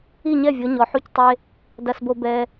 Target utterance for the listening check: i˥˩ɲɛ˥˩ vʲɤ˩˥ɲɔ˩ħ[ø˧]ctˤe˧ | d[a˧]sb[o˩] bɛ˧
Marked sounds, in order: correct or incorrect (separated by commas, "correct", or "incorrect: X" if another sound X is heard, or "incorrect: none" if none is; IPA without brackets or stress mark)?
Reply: incorrect: u˧, correct, incorrect: o˧